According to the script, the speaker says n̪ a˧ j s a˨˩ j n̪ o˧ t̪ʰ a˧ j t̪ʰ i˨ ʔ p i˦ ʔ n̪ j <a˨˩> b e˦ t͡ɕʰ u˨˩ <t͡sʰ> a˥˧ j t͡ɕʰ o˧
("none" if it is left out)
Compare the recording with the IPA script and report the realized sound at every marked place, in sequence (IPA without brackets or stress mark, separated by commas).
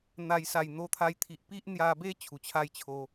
a˧, t͡ɕʰ